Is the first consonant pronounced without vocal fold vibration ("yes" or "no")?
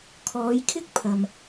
yes